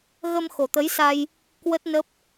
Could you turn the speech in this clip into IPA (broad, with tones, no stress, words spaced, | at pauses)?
ɣə˧mxo˨˩t̪ə˨˦jsa˧j | kwə˦˥t̚nə˦˥p̚